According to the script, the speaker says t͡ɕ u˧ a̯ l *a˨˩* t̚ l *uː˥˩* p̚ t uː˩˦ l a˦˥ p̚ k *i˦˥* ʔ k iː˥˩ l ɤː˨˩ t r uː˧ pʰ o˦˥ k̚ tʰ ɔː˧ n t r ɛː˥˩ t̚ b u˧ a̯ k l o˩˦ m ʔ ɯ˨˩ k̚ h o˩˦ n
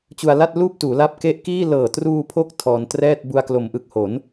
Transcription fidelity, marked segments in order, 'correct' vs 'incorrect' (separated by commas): incorrect, correct, incorrect